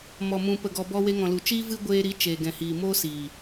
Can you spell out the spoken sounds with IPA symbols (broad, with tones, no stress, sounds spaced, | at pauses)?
m ɔ˨ m ũ˨ p ə˨ ɡ ɔ˨ b ɔ˧ w e˧ ŋ ɔ̃˨ l u˨ t͡ʃ iː˦ v ɨ˦ ɡʷ eː˧ ɾ i˨˦ t͡ʃ eː˨ ɡ ɛ̃˨ h iː˨ m oː˦ s iː˨